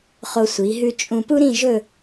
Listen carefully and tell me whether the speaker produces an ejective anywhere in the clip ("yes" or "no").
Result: yes